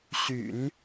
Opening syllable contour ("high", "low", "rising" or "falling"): low